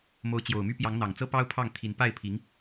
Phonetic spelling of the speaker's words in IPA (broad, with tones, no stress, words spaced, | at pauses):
mo˧˥ʊ̯t͡ɕjo˨˩ʊ̯my˥ pjɑ˧˥ŋn̪ɑ˨˩ŋt͡sɤ˥ pɑ˥ʊ̯pʰɑ˥˩ŋt̪ʰi˧˥n pa˥˩ɪ̯pʰi˧˥ŋ